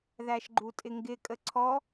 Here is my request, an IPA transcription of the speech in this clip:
ð æ ʃ ɡ͡ǃ u tʼ ɪ ŋ ɡ ɪ kʼ ə ǀʰ ɔ

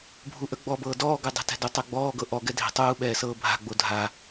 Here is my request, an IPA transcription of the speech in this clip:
bʱ u ʔ ə ɡ͡b ɔ b ɤː d ɔː ɡ ə˞ dˤ ɛ̤ t ɛ̤ d u tˤ ɜ ɡ͡b ɔː ɡ ɤ ʔ ɔ ɡ ɛ dʱ ɛ̤ tˤ uː ɓ ɛː s ɤː bʱ a̤ ɡ͡b o dʱ a

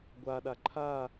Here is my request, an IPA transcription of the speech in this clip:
ɡʷ a ɗ a ǃʰ a

